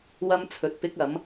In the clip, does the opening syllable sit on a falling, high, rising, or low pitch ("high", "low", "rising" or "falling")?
high